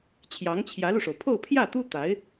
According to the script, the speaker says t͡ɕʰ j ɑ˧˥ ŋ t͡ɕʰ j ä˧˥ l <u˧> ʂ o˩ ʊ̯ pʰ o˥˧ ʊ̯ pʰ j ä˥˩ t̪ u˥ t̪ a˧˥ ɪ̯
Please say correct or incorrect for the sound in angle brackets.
correct